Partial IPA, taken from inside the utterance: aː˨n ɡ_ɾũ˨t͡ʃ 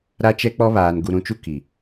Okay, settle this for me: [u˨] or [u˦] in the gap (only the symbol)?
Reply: u˨